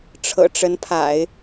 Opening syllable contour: low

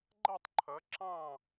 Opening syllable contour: falling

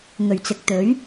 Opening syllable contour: low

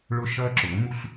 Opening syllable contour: high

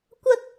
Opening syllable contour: high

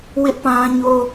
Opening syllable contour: high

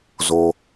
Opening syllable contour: low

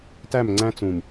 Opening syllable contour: falling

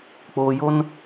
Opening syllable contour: low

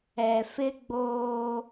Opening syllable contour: low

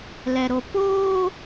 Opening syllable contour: low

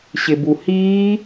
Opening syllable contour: low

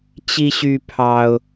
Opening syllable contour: high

